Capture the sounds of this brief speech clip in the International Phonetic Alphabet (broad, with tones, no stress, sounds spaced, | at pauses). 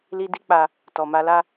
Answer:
l i˧ d i˦ k͡p a˧ | t ɔ˨ m a˧ l a˦